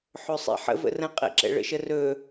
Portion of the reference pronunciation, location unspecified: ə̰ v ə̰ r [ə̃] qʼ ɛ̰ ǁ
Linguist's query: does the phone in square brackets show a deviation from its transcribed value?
no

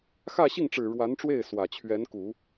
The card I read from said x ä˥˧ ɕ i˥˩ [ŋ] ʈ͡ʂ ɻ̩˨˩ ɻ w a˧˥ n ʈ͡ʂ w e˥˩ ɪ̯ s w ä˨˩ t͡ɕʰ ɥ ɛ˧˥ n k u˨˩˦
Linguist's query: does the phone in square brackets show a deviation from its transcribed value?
no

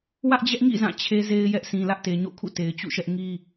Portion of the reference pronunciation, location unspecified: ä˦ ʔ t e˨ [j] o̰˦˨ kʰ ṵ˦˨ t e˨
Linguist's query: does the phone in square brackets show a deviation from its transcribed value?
yes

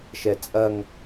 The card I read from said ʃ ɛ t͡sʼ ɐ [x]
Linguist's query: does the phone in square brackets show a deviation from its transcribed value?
yes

